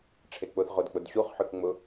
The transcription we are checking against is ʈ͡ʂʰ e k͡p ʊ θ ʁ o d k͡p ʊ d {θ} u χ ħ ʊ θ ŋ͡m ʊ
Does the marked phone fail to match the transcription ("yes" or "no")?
yes